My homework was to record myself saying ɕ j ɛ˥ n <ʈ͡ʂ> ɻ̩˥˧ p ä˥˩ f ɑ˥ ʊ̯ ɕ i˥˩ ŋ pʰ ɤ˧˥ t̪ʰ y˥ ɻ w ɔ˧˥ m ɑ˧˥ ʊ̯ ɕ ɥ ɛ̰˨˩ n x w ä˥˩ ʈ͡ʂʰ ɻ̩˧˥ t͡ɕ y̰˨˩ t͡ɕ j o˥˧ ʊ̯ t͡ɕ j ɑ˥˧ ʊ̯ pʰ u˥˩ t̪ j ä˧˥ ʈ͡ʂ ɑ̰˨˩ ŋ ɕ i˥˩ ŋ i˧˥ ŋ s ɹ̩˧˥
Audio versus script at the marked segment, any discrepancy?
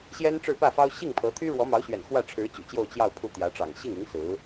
no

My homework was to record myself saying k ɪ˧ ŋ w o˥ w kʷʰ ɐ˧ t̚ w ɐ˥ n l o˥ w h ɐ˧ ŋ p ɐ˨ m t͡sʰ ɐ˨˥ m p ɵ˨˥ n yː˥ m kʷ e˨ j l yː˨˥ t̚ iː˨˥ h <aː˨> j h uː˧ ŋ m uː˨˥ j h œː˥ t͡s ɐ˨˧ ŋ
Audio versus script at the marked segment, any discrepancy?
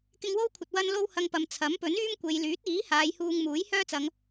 yes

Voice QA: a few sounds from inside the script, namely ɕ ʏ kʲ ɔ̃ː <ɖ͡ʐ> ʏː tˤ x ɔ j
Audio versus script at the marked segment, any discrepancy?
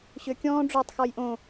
no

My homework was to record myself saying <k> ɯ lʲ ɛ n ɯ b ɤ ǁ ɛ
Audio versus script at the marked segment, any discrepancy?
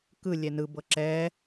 no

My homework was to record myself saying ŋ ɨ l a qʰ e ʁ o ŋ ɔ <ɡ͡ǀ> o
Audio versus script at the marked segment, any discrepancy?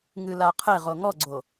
no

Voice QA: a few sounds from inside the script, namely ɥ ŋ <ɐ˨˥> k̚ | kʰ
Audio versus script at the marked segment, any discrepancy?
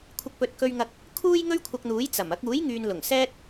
yes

